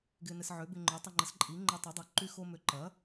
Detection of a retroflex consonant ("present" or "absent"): absent